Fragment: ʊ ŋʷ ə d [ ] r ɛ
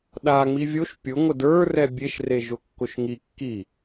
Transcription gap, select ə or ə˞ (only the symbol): ə˞